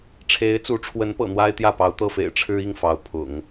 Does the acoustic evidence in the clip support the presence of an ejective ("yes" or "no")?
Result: no